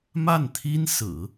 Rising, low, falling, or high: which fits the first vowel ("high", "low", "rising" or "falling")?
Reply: falling